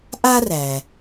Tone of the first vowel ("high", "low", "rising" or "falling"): high